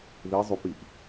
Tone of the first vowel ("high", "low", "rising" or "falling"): rising